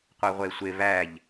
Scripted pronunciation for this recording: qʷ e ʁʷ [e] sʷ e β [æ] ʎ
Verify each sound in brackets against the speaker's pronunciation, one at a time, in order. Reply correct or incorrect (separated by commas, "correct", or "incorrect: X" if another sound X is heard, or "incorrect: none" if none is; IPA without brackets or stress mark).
correct, correct